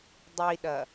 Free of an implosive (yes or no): no